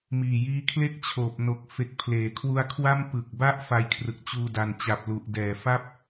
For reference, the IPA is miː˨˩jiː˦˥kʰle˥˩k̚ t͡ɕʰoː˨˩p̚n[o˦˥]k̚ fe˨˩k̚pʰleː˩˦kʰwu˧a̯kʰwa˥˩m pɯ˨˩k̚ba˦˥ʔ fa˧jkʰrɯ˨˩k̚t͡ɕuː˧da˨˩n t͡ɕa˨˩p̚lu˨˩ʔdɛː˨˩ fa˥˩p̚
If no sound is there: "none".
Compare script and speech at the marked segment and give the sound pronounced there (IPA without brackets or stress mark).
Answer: o˨˩